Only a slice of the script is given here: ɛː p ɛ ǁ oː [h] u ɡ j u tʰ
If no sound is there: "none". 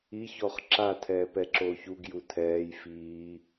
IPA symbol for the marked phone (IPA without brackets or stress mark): ç